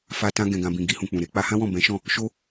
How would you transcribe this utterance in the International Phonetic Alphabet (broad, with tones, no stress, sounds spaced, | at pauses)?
f a˧ t ã˧ ɡ ɛ̃˨ ɡ ã˨ b ĩ˨ ɡ i˧ h ũ˨ k͡p ũ˨ ɾ e˧ k͡p a˧ h ã˦ w ɔ̃˦˨ b ɛ̃˨˦ ʃ ɔ̃˦˨ | ʃ o˧